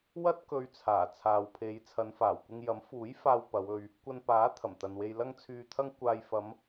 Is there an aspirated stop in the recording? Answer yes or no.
yes